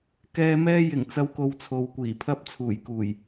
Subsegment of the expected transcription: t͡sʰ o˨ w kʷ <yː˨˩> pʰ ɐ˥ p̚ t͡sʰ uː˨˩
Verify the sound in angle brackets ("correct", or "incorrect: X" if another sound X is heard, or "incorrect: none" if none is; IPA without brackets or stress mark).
incorrect: iː˨˩